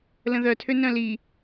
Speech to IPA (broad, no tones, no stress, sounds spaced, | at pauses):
l ə̃ ð œ tʰ ø n œ̃ l i